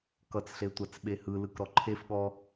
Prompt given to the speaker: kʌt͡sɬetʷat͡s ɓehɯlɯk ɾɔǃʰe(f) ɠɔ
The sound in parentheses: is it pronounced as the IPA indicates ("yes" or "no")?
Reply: yes